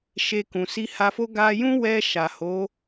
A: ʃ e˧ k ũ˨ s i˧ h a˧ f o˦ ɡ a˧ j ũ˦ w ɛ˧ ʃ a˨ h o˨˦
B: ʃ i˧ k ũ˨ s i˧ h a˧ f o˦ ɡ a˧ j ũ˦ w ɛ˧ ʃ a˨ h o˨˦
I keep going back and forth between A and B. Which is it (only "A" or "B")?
A